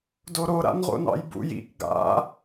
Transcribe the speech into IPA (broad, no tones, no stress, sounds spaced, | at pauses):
d o ɾ o ɾ a̰ n ʁ o̰ n ɑ̰ j b ṵ j ḭ k ɡ a̰